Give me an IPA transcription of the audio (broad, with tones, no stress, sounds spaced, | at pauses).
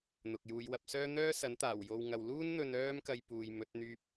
n̪ ʊ˨ k̚ j uː˨˧ j w ɐ˨˥ p̚ s œː˥ n̪ œː˥ s ɐ˨˥ n t̪ aː˨˩ w j o˨ w ŋ ɐ˨ w l uː˥ n n̪ ɵ˧ n œː˥ m k ɐ˧ j p uː˨ j m ɵ˨˥ t̚ n̪ yː˥ p̚